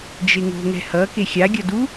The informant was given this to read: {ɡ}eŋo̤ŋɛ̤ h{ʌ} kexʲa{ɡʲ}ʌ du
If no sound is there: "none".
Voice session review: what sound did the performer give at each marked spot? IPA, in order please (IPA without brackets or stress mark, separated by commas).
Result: d͡ʒ, ʌ, ɡʲ